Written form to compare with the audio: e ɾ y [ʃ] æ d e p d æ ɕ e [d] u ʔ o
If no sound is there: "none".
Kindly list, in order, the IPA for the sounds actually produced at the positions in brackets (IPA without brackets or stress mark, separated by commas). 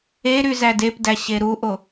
z, ɾ